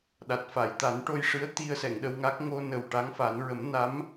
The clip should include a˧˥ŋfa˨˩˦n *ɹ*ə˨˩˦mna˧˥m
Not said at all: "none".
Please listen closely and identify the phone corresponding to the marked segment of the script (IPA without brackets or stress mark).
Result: ɹ